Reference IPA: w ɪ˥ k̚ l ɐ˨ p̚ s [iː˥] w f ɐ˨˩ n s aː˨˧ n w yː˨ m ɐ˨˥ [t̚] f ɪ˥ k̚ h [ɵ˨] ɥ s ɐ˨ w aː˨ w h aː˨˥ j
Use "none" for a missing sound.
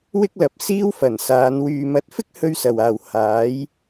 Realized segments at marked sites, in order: iː˥, t̚, ɵ˥

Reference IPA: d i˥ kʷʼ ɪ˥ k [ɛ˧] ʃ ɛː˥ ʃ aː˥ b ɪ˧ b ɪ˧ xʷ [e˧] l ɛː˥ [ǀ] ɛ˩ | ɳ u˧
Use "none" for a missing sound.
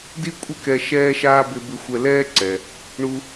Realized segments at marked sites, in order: ɛ˧, ɛ˧, ǀ

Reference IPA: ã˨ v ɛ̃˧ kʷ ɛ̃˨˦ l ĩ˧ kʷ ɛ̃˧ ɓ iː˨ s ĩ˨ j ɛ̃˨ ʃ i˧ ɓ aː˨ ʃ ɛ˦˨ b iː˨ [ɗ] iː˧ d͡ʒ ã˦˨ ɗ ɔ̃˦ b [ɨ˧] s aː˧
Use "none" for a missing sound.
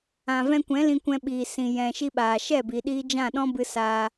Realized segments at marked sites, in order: ɗ, ɨ˧

